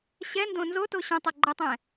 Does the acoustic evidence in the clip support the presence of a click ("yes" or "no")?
yes